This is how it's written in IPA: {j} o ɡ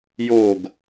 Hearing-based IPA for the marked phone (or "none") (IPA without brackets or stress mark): j